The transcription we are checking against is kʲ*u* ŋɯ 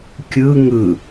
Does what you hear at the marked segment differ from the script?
yes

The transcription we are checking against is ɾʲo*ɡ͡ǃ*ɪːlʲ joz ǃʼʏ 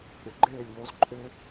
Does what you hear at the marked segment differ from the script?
no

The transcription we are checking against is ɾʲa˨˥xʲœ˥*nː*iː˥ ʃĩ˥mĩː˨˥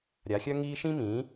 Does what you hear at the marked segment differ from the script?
yes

